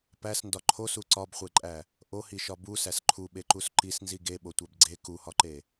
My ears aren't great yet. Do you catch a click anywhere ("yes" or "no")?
yes